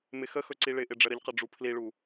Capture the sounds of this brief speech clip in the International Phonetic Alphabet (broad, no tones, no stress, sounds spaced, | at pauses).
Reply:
m ɪ x ə x ɵ ǀ i ɭ ɪ ʔ ɪ ɖ͡ʐ ə ɾ ə ʎ q ə ɖ͡ʐ u pʰ l i ɭ u